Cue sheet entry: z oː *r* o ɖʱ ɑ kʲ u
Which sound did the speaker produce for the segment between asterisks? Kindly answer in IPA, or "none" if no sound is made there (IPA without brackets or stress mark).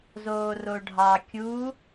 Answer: r